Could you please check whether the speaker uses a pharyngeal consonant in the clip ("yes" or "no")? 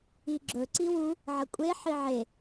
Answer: yes